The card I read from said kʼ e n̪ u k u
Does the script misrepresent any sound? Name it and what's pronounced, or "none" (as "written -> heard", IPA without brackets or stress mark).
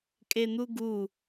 k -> ɡ